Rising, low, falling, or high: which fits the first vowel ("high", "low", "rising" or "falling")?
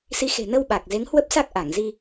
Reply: rising